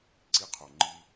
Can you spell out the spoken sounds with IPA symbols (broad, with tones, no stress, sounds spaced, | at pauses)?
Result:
ǀ i˦ qʰ o˨ ŋ͡ǃ i˦